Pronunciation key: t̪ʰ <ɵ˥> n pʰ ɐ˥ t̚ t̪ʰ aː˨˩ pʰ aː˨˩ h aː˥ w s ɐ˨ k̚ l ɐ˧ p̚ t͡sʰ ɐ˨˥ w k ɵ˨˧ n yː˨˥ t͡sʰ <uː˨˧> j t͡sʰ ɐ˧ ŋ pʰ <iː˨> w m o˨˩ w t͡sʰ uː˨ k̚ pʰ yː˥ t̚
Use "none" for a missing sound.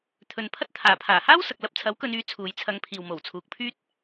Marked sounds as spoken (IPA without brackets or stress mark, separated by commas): ɵ˨, uː˨˧, iː˨